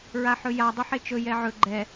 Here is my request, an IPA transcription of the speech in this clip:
ɹaħɵja dˤɵħet͡ʃɵ jɛʕɵ ɡ͡ǃɛ

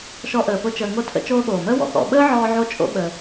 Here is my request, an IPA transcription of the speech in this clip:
ʃɔ˦ʔəː˨pʊ˦ t͡ʃəː˨ŋo˦tʰə̰˦ t͡ʃoː˦ɠoː˩məː˥wɔ̰˩ xɔ̰˨ɓəː˥ ʕɔː˦ʕo˦t͡ʃʼo̰˦ɓəː˨

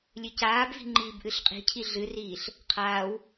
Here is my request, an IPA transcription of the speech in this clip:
lʲɨcaːbvi̤ ŋ͡ǃiːbʔɨɬqʼi̤cʰi ɮɨriːɬ | qʰaːw

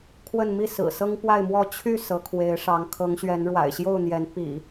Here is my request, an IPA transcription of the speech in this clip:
kʰwə˥˨nmi˥˨sɹ̩˨˩ sɤ˦ŋpwa˥˨ɪ̯mwɔ˥˨ t͡ɕʰy˥˨ sɤ˨˦kʰwe˨˦ɪ̯ʂɑ˨˦ŋ kʰɤ˨˦ŋɕɥɛ˨˦n ɻwa̰˨˩ɪ̯ɕjo˥˨ʊ̯n̪jɛ˨˦n pḭ˨˩

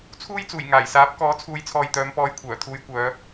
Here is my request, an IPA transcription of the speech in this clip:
t͡sʰuː˥jt͡suː˨˩j ŋaː˨˩jsaː˨˥p̚kɔː˨˥ t͡sʰuː˨˧jt͡sʰɔː˨jt̪œː˨˧m pɔː˧jkʷʰœː˨˩t̪ʰuː˧jkʷœː˨˧

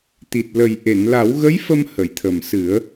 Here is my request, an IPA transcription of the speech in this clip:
t̪i˨˩t̚lə˨˩j ʔe˨˩˨nla˨˩˦wɣə˧˥j fə˧mhə˨˩˨jt̪ʰə˨˩m sɨ˨˩˦ə̯

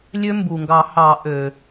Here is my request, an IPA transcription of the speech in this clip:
lʲø˦˥mbu˩ŋɡɑ˨˩˦hɑ˨˩˦ ʔø˩

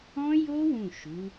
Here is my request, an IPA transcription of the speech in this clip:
ɔ̃˦jo˦ wũ˦˨ʃu˨˦

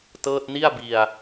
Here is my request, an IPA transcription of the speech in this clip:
tɤː˥˩t̚ ni˥˩a̯bi˧a̯

